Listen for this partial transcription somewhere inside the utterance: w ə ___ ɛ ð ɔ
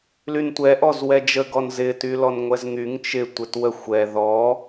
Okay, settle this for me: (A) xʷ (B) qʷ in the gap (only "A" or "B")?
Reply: A